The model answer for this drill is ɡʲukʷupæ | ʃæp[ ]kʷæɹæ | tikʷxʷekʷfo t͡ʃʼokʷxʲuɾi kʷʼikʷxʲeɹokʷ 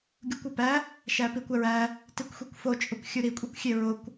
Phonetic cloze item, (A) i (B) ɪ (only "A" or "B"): A